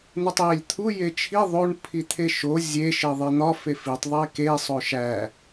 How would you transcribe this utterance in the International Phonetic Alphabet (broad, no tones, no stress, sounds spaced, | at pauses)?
n̪ u tˤ j e lʲ t̪ʰ u j e t͡ʃʰ i ðˤ o ɳ pʰ i t̪ʰ e ʃ o zʲ e ʃ e ðˤ e n̪ ɒ f e f i tˤ ðˤ e k e sˤ o ʃ æ